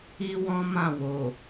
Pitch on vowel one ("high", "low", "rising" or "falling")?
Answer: high